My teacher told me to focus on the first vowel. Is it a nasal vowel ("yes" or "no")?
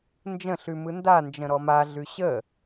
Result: yes